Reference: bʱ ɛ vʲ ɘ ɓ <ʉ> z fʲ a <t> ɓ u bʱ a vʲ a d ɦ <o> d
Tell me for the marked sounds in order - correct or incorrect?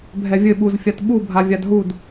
incorrect: u, correct, incorrect: u

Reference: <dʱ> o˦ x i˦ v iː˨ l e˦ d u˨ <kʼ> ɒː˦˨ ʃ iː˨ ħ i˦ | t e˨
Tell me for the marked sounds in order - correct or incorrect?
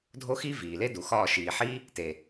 correct, incorrect: x

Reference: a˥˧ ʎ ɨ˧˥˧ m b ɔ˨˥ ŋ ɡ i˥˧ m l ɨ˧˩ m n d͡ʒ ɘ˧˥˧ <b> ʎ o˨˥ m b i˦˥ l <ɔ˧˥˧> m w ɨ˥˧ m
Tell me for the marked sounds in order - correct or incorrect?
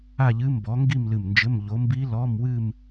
incorrect: m, correct

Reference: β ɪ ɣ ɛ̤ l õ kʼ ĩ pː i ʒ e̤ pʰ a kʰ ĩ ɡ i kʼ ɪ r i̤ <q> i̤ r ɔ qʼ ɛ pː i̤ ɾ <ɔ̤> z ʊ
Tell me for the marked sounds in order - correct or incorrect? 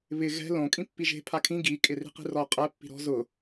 correct, correct

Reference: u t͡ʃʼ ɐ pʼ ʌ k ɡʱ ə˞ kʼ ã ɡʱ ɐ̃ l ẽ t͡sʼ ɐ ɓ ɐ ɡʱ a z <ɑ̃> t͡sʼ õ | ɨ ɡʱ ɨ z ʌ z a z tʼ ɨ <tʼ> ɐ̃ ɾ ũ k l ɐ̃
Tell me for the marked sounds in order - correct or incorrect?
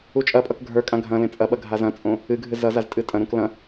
incorrect: ɐ̃, correct

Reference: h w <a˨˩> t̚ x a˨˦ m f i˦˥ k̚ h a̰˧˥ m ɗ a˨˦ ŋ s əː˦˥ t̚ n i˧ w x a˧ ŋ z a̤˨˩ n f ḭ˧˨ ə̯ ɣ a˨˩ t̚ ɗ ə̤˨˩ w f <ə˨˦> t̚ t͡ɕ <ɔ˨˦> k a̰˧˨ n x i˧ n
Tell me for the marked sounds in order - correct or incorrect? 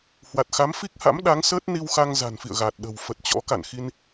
correct, incorrect: ə˨˩, incorrect: ɔ̰˧˥

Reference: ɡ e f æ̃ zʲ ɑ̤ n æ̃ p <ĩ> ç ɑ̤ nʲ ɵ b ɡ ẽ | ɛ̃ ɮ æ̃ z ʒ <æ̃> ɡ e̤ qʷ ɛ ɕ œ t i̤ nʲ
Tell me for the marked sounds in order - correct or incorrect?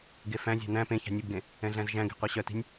incorrect: ẽ, correct

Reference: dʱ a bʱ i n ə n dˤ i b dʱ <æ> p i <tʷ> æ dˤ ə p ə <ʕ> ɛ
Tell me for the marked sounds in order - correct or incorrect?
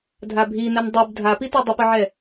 incorrect: a, incorrect: t, correct

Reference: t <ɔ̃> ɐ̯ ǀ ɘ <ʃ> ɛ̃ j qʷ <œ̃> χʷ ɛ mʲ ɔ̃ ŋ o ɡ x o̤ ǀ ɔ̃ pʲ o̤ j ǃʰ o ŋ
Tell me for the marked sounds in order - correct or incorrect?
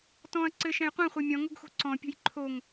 correct, correct, incorrect: ɛ̃

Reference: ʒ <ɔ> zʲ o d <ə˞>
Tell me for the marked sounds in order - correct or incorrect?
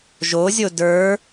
incorrect: o, correct

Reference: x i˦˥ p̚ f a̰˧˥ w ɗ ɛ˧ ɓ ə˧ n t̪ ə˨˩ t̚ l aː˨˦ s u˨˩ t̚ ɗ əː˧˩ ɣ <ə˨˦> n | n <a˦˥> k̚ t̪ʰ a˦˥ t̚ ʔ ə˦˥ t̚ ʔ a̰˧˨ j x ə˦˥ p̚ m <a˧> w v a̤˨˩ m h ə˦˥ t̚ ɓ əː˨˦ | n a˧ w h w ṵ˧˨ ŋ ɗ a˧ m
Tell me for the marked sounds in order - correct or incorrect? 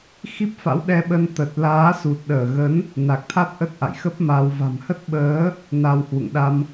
correct, incorrect: a˨˩, correct

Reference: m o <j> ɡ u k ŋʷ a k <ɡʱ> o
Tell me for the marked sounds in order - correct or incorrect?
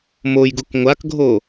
correct, correct

